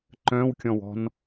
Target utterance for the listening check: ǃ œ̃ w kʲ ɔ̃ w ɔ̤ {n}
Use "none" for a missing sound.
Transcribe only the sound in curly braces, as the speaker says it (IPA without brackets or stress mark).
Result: n